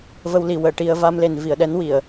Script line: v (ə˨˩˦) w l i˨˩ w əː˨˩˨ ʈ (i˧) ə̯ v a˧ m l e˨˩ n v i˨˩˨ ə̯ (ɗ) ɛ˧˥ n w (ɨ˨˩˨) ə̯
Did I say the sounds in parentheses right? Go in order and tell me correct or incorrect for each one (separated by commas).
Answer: incorrect, correct, correct, incorrect